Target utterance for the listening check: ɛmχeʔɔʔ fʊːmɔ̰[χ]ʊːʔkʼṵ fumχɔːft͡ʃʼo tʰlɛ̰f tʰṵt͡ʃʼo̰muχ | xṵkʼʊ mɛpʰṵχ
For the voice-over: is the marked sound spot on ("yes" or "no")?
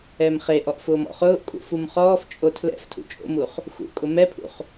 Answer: yes